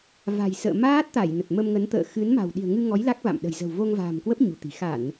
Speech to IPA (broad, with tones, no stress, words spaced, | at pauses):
va̤˨˩j sə̰ː˧˨ maː˦˥t̚t̪a˧˩j nə˨˩t̚mə˧mŋə˨˦n t̪ə̰ː˧˨ xɨ˨˦nma̤˨˩w ɗi̤˨˩ə̯ŋɨ˧ŋɔ˨˦j la˦˥k̚va̰˧˨m ɗə̤˨˩jzə̤˨˩w vo˧ŋva̤ː˨˩mkwə˦˥p̚ ɲṳ˨˩t̪i̤˨˩ xa˧˩˨n